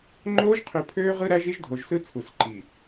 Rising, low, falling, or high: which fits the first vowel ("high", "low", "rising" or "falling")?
high